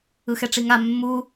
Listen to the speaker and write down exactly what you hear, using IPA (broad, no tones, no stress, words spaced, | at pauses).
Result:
ɯxɛʈ͡ʂiŋa mːu